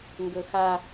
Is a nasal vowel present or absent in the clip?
absent